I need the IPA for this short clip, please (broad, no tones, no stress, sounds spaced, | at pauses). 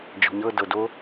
d͡ʒ ɔ̤ ɲ ɤ d ɤ d o